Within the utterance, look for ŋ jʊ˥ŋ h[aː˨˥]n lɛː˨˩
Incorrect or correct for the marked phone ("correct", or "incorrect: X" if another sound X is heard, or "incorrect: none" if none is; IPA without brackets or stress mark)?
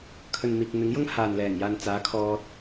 incorrect: aː˨